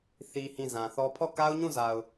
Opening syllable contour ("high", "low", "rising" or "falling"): high